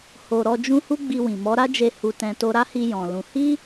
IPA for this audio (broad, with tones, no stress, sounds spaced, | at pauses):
h o˨ ɾ ɔ˧ d͡ʒ ũ˦ h u˦ ɡ͡b i˧ w ĩ˨ m ɔ˨˦ ɾ a˦ d͡ʒ e˧ h u˧ t ɛ̃˧ t o˧ ɾ a˦ h i˧ j ɔ̃˨ l ũ˧ h i˦